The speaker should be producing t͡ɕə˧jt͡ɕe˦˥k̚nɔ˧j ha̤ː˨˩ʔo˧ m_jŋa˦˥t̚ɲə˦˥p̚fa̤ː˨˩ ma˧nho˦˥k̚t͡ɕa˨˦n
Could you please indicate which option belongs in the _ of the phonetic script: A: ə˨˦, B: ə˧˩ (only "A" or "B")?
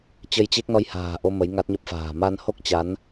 A